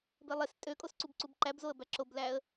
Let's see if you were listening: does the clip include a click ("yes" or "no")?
yes